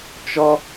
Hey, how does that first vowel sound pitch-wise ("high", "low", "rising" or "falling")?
high